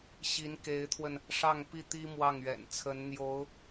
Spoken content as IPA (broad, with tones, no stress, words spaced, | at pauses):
ɕi˧˥nke˧˥ɪ̯t̪ʰwə˧n | ʂɑ˥˧ŋpi˥˩t̪i˥ mwɑ˥˩ŋɥɛ̰˨˩nt͡sʰə˧˥nn̪jo˧˥ʊ̯